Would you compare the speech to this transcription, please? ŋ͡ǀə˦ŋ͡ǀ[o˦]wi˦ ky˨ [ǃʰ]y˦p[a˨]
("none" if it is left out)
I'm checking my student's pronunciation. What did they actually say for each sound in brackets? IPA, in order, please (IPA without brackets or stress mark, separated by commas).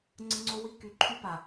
o˦, ǃʰ, a˨